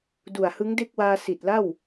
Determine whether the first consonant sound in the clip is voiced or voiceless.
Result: voiced